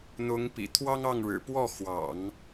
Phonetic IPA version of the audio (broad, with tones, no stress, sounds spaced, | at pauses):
n̪ ʊ˧˥ ŋ p ḭ˨˩ t̪ʰ w ɑ˥ ŋ ɑ˥˩ ŋ ɻ ɻ̩˨˩ p w ɔ˥˩ x w ɑ̰˨˩˦ ŋ